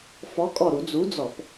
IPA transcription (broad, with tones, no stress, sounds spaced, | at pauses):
f ɔ˨˥ kʼ ɔ˧˩ ɾ u˧˩˧ d͡z u˨˥ d͡z ɔ˧˩˧ p